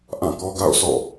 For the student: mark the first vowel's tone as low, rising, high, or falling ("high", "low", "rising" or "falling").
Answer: falling